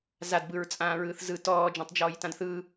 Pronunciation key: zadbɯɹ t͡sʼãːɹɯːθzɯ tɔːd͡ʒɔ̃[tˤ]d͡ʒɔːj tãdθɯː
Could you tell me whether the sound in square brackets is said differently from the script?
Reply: no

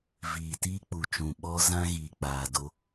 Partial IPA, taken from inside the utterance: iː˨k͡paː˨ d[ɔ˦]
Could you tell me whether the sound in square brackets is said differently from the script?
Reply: yes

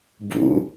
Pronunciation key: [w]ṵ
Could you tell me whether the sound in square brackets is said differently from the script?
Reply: yes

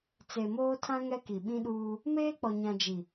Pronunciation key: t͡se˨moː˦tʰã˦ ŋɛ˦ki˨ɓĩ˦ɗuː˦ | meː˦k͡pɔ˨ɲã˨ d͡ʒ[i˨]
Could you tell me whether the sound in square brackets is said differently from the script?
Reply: no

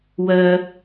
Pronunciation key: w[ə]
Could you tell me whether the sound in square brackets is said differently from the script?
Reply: yes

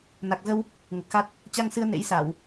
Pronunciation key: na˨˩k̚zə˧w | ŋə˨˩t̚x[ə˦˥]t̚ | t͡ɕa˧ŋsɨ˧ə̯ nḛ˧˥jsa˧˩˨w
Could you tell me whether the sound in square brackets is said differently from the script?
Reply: yes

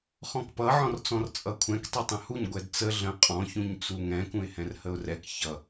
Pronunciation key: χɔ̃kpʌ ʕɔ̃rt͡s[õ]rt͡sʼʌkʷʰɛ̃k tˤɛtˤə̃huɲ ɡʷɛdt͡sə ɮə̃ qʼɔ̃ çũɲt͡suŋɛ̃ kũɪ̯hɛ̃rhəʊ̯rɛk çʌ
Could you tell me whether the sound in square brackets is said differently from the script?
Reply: yes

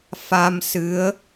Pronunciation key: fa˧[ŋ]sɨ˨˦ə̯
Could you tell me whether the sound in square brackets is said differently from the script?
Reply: yes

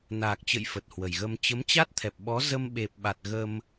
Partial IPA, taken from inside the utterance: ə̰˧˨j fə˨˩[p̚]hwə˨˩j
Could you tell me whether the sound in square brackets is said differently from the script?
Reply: yes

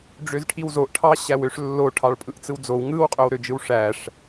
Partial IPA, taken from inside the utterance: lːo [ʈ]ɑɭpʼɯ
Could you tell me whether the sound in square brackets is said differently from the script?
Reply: yes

